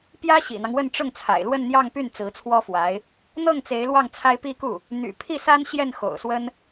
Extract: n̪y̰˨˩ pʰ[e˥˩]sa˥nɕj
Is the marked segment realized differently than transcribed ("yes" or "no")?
yes